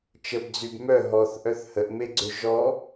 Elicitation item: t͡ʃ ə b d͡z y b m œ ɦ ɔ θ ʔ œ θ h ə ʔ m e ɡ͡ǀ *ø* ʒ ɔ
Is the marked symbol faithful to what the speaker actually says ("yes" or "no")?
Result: yes